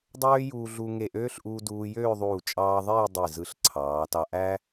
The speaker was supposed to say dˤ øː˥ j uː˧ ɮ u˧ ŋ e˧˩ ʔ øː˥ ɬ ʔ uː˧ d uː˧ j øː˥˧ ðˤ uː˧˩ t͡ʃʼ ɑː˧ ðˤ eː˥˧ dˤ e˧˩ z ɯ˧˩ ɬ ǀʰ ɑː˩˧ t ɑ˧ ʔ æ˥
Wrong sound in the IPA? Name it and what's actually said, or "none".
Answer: none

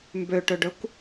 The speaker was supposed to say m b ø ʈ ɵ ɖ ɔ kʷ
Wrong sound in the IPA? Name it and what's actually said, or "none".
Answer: ɔ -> ɵ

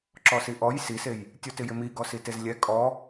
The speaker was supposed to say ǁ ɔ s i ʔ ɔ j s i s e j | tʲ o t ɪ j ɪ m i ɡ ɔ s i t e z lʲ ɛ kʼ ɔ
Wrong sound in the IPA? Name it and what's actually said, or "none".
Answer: none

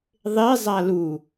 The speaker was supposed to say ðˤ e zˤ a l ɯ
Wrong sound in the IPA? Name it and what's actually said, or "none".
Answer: ɯ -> u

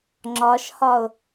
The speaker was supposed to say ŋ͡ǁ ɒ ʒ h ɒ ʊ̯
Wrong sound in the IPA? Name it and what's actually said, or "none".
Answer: ʒ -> ʃ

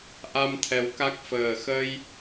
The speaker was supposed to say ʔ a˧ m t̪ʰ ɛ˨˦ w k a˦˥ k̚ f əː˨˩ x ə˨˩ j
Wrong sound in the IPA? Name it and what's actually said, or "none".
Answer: ə˨˩ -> ə˧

